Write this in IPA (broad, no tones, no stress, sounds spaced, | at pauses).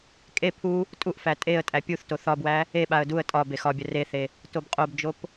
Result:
kʼ e pʰ u | tʼ u ʔ f æ tʼ e ə̯ tʼ æ pʲ u θ t o θ ɒ b w æ | e ɓ a ə̯ d u ə̯ tʼ ɒ b e x ɒ bʲ ɐ r e θ e | t o b qʼ o b d͡ʒ o p